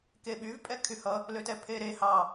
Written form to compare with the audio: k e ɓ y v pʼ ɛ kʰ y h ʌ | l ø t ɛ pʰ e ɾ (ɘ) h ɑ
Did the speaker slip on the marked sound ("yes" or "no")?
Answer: yes